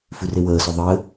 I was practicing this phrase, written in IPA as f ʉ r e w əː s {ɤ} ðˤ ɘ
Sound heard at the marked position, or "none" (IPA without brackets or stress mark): o